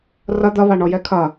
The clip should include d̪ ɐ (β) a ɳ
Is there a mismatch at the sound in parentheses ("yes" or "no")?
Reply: no